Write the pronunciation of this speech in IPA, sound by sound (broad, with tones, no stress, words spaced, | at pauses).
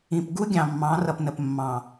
ĩ˨pɡu˦ɡʲɑ̃˨mːɑ̃˨˦ rʌ˨pnə˨p mːɑ̃˨